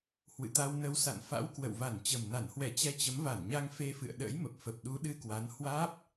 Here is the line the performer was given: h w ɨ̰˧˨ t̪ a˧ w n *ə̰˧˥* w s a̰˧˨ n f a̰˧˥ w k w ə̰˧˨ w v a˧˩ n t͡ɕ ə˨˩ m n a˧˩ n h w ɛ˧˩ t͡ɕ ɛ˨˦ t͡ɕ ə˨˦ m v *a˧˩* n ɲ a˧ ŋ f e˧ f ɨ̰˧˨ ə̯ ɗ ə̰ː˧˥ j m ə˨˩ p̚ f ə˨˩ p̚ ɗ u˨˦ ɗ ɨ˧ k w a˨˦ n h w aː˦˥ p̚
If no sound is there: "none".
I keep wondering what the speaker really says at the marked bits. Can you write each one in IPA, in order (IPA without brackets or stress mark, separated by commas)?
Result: ə˧, a˧˩